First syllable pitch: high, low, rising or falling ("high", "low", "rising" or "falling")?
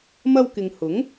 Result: high